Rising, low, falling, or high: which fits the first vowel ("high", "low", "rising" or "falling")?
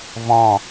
falling